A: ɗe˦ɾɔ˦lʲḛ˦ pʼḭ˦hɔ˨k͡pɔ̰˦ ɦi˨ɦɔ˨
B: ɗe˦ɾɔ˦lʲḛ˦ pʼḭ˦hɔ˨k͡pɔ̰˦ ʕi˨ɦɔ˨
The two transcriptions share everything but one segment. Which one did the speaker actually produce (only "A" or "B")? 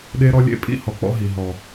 A